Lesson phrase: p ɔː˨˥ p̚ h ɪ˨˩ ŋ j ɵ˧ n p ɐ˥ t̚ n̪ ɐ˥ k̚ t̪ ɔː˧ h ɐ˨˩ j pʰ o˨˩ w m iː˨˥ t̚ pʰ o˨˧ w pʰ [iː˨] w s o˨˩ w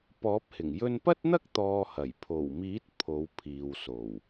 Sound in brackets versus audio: correct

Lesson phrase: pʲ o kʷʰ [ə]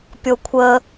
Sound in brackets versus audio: correct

